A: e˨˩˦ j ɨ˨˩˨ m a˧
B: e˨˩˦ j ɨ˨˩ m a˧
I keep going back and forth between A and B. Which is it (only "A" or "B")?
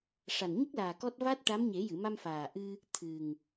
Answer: A